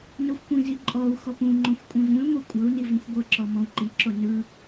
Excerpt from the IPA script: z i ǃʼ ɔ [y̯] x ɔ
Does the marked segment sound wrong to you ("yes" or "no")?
yes